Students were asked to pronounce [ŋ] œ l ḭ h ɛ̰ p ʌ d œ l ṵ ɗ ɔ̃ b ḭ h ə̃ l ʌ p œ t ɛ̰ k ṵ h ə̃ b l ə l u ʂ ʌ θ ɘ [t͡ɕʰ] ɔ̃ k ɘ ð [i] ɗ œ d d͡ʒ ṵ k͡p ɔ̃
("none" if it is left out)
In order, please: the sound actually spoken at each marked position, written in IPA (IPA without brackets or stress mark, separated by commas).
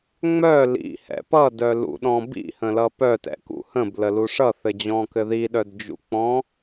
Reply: ŋ͡m, d͡ʑ, i